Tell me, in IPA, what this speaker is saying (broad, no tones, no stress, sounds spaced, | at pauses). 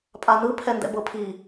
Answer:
pʼ a n ɯ pʰ ɛ n d ɛ̰ b ɤ pʰ i